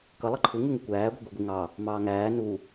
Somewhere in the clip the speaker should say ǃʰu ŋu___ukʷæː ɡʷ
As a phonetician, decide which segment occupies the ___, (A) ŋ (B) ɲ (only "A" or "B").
A